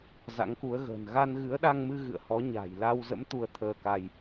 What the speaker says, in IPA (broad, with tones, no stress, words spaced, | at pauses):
za̰˧˥ŋku˨˦ə̯ ɣə̤ː˨˩nɣa˧n ɣɨ˨˦ə̯ɗa˧ŋmɨ˧ɣɨ̰˧˨ə̯ hɔ˨˦ ɲa̤˨˩j la˧wzə̰˧˥m t̪u˧ə̯t̪ʰəː˧ka˧j